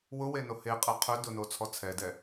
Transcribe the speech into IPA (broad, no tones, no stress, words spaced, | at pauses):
wʊweno heqʼɛ qʰɵ dʊnot͡sʰɔ t͡sʰɛdɛ